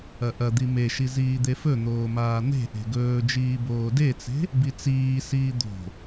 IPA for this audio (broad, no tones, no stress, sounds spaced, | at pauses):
ɐ ʔ ɐ d̪ i m e ʃ i z iː d̪ e f ɵ n̪ oː m aː n̪ e̤ ʔ e̤ ɡ ɵː d͡ʒ iː b oː d e t͡s e̤ | b i t͡s iː s iː d̪ o̤